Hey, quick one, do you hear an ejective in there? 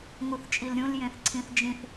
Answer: yes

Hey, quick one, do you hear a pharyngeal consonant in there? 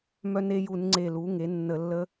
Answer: no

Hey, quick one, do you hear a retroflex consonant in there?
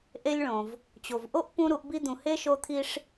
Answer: yes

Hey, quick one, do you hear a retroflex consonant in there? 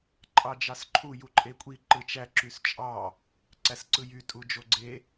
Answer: no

